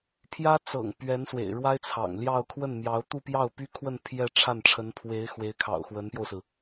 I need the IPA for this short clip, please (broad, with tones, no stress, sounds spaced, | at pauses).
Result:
pʰ j ä˥ t͡s ɤ̰˨˩ ŋ p ɥ ɛ˧˥ n s w ḛ˨˩ ɪ̯ ɻ w a˥ ɪ̯ t͡sʰ ɑ̰˨˩ ŋ l j ɑ˥˧ ʊ̯ kʰ w ə˥˩ n m j ɑ˧˥ ʊ̯ t̪ u˥˧ p j ɑ˥˩ ʊ̯ p y˥ kʰ w ə˥˧ n pʰ j ɛ˥˧ ʈ͡ʂʰ a˥˩ n ʈ͡ʂʰ ə˧˥ n pʰ w e˧˥ ɪ̯ x w e˧˥ ɪ̯ kʰ ɑ̰˨˩ ʊ̯ x w ə˧˥ n p j o˧ ʊ̯ s ɹ̩˩